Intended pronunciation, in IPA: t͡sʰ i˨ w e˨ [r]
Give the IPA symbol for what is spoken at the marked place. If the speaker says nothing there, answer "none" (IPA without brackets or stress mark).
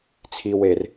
r